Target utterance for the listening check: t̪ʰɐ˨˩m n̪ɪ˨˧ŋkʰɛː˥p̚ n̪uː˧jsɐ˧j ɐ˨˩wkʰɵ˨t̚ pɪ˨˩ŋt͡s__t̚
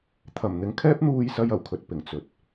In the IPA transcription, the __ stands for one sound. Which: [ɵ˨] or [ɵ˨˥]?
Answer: ɵ˨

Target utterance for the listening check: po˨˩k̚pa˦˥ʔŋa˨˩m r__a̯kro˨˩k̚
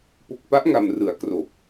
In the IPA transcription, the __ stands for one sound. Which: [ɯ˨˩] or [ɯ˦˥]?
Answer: ɯ˨˩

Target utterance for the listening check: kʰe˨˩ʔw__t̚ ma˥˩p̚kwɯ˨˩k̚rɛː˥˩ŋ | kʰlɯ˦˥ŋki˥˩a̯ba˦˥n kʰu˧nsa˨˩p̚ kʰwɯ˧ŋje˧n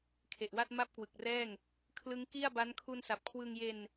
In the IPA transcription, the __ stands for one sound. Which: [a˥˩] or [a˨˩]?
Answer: a˥˩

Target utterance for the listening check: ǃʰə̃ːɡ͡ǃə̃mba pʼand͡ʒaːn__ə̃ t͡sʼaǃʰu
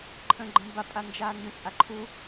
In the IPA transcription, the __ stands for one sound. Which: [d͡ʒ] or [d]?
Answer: d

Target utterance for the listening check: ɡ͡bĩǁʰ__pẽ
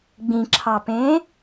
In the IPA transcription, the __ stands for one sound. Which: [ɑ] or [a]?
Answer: ɑ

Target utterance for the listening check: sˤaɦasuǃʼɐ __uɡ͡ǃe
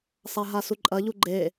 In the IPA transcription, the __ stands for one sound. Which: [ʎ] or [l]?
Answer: ʎ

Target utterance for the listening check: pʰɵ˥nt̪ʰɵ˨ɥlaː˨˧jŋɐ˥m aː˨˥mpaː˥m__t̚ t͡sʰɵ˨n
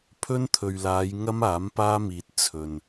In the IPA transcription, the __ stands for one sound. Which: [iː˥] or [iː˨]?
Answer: iː˨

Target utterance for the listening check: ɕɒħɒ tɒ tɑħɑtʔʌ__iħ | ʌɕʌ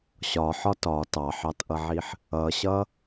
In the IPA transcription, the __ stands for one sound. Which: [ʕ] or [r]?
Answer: ʕ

